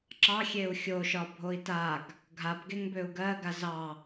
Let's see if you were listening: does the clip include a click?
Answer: yes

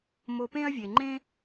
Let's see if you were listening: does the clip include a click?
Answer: yes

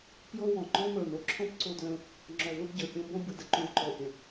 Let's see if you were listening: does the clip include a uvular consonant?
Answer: no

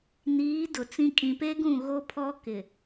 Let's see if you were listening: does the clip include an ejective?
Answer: yes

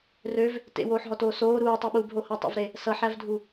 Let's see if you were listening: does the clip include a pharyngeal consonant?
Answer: yes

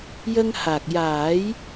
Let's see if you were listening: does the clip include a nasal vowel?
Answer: no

